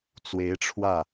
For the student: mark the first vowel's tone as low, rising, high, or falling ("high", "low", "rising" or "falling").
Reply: rising